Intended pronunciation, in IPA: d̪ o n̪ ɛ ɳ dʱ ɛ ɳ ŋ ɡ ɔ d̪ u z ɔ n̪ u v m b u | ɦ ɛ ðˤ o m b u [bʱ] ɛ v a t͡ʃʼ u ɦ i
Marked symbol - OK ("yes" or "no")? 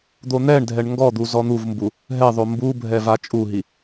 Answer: yes